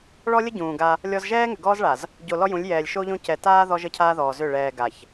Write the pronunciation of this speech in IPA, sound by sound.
ɭ ɔ˦ lʲ ə˦ ɟ ũː˨ ɡ a˦ | lʲ ɔ˦ z ʒ ɛː˦ ŋ ʏ˨ ɡ ɔː˦ z ɭ a˨ z | ɟ o˨ l ɔ˦ j ũ˨˦ lʲ j ɛː˨ lʲ ʃ o˦ ʎ õ˦ c ɛ˨ t aː˦ ð ɔ˦ ʒ ə˦ cʰ aː˦ ð ɔː˨ z ʏ˦˨ ɭ ɛː˨ ɡ a˨ ç

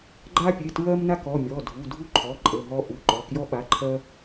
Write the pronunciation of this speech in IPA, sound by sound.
ɡ͡ǃ a˦ pʲ e˩˧˩ t ɹ ɜ˦ m n a˦ k ɔ˩˧˩ mʲ ɔ˩˧˩ dʱ u˩˧˩ dʱ u˦ ǃʰ ɔ˩˧˩ ǃʼ ə˩˧˩ ɦ ɔ˦ ʔ u˩˧˩ ǃ ɔ˩˧˩ k j ɔ˦ ɓ a˩˧˩ ǃʰ ɜ˦

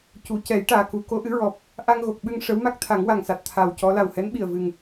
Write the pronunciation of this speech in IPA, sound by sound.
c u˨˩˨ c ɛ˨˩˦ j ʈ aː˨˩ k u˨˩˦ k o˧˥ ʔ ɨ˧˥ ɹ ɔ˨˩ p̚ | ʔ a˧ ŋ ɣ o˨˩ k̚ ɓ ɨ˧ ŋ ʂ ə˧˥ w m a˦˥ k̚ t̪ʰ a˨˩˦ ŋ w a˨˩ ŋ s a˨˩ t̚ t̪ʰ a˨˩ w c ɔ˧˥ l a˨˩ w h ɛ˧˥ n ɓ i˨˩ ə̯ v ɨ˨˩ ŋ

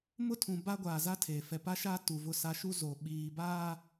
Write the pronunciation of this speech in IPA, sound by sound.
m ʊ˦ tʰ ũ˨ b a˦ ɡʷ aː˨ z a˦ tʰ e˨ f ɛ˨ p a˦ ʃ aː˦ t u˨ v ʊ˦ s a˦ ʃ u˦ z o˨ ɓ iː˨ b aː˦

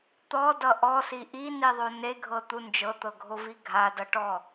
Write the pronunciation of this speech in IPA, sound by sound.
t̪ ɔ d ʌ ʔ ɔ s i ʔ i n i ðˤ o n e ɡʱ ɤ t̪ u n d͡ʒ ɤ t̪ ɤ ɡʱ o v i ɡʱ a d ʌ ʈ ɔ

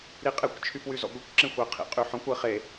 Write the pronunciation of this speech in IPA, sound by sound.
ɾ i qʼ e kʷ t͡ʃʰ y p w y z ɔ̰ ɡʷ i kʷ ǁ ẽ xʷ ʌ ɪ̯ qʰ ḭ qʼ y ħ ɔ̃ kʷ ʌ ɪ̯ χ e

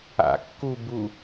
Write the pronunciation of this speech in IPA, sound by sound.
a̰ kː u b u

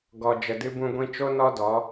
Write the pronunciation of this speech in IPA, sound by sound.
ɡ ɔ˨ d͡ʒ ə˨ d ɨ˧ b ũ˧ ɡʷ ĩ˧ t͡ʃ o˦ n ɔ˦ d ɔ˨˦

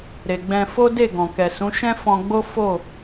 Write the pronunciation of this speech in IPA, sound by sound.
ɾ e˨ ɡ͡b ɛ̃˧ f o˦ d e˦˨ ɡ ɔ̃˨ k ɛ˨ s ũ˨˦ ʃ ɛ̃˦ f ɔ̃˧ ɡ͡b o˦ f o˦˨

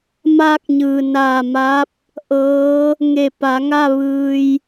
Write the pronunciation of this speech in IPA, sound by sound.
m aː˧ k̚ ɲ ɯː˩ n aː˧˩ m a˧˥ p̚ | ʔ ɤː˧˥ | ŋ e˧˩ p a˩˧ ŋ a˥˨ ʋ ɯː˧ j

